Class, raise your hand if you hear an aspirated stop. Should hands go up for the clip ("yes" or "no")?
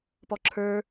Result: yes